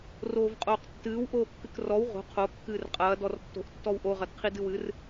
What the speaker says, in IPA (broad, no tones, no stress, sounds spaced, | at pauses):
r oː v qʼ oː q tː ɨː w ʔ oː kː ɨ k r ɔ w ʁ o̤ qʰ o kː ɨː r qʼ ɐː d ɔ r tː o̤ ʔ tː ɔ w ʔ o ʁ ɐ d qʰ i d ɨ w ɨ r